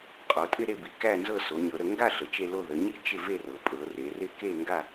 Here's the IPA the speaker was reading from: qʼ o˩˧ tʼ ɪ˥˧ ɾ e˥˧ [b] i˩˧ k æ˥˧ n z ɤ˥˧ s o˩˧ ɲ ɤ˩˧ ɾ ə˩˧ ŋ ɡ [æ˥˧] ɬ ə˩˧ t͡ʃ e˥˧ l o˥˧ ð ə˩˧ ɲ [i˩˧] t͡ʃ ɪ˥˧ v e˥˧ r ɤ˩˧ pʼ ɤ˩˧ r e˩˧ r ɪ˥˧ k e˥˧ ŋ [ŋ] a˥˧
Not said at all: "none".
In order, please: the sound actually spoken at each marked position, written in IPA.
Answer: b, a˥˧, i˥˧, ɡ

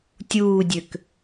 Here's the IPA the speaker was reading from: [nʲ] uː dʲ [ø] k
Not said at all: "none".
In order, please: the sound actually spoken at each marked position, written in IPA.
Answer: tʲ, ø

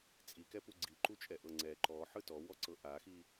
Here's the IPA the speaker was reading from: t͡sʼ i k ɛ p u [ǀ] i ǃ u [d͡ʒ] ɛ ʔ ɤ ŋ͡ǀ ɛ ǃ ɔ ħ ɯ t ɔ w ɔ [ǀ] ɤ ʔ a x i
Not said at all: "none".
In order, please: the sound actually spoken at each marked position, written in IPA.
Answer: ɡ͡ǀ, t͡ʃʼ, ǀ

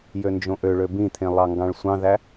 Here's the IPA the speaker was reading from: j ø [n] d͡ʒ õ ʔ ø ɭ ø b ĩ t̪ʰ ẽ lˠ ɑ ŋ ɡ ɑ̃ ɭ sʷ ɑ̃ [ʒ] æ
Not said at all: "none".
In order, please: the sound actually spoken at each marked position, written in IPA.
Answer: n, ð

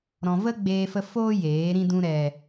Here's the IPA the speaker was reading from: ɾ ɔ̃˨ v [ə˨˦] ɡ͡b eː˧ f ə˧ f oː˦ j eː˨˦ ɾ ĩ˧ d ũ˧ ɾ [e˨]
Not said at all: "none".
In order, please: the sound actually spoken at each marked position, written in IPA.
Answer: ə˦, ɛ˨

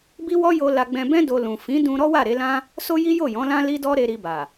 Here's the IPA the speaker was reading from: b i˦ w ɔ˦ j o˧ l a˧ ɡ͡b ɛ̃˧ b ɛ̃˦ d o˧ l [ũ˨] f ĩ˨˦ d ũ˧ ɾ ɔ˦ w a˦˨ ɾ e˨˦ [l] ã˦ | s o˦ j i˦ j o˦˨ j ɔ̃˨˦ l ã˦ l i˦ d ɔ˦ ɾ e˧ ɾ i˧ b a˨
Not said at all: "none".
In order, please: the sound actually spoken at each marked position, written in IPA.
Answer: ũ˨, l

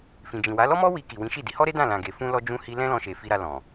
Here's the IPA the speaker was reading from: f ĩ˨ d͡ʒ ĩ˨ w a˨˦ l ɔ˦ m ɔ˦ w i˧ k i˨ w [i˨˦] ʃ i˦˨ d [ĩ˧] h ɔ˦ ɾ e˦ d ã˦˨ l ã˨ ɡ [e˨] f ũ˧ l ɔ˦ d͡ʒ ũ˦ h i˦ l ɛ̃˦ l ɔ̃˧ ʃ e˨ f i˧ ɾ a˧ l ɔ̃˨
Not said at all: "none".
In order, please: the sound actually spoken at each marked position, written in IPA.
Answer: ĩ˨˦, i˧, e˨

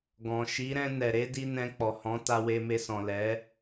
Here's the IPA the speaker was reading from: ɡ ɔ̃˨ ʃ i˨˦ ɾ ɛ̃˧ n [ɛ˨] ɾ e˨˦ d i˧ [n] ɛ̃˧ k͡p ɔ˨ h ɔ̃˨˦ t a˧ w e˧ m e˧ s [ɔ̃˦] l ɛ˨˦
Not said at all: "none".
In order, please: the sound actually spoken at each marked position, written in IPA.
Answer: ɛ˨, n, ɔ̃˨

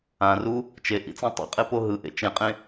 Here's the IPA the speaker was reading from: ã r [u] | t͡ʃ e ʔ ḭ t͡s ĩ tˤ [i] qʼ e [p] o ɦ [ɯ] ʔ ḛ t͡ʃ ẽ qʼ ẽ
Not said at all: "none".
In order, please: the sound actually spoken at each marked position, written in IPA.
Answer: u, ḭ, p, ɯ

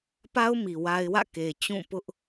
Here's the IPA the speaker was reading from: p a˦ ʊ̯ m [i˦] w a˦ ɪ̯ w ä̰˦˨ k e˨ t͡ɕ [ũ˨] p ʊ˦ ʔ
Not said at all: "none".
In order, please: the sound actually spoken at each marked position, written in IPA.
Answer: i˨, ũ˦˨

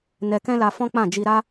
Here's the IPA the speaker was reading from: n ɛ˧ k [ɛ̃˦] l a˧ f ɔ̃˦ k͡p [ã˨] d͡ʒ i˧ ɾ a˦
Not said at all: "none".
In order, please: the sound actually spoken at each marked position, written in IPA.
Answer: ɛ̃˦, ã˦˨

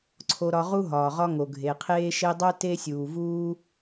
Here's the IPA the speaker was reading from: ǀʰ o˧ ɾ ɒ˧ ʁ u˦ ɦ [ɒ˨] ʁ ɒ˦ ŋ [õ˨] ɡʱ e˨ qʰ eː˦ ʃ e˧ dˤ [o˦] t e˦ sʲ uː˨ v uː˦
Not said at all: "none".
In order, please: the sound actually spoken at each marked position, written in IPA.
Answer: ɒː˨, o˨, o˦

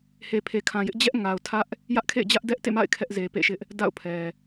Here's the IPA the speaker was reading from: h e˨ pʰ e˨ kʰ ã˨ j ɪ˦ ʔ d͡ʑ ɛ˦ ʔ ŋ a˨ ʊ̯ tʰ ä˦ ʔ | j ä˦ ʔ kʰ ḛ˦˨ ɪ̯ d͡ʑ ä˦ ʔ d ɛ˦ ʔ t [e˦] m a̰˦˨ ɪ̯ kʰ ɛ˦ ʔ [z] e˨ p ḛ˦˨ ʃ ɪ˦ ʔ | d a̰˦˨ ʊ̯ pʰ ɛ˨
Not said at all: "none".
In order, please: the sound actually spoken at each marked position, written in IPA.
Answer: ḛ˦˨, z

